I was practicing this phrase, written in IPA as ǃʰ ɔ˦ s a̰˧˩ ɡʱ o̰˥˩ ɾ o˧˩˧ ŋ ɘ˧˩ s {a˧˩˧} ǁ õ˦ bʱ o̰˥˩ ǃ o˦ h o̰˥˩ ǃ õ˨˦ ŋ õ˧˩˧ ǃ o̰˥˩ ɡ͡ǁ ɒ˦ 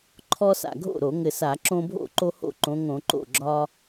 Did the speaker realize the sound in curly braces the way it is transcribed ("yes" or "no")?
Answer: yes